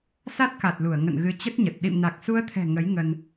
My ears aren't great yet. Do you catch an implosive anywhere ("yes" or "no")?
yes